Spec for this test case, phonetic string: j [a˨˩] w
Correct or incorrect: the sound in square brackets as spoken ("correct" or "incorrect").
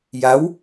incorrect